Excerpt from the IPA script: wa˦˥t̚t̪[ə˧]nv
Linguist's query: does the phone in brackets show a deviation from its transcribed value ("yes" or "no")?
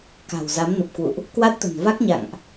yes